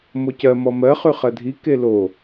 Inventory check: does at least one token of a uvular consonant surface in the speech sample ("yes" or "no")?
yes